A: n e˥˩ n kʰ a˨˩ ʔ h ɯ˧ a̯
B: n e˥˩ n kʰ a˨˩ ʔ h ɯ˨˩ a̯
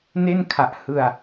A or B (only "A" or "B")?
A